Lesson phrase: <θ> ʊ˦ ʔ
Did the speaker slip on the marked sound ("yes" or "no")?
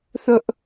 no